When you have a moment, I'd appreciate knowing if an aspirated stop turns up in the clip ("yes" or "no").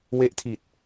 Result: yes